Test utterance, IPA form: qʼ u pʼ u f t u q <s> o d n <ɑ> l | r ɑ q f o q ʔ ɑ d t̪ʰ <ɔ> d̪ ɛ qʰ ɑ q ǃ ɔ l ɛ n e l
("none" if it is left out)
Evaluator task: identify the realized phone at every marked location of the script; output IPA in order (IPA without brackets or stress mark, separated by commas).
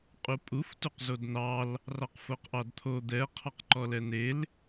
z, ɑ, o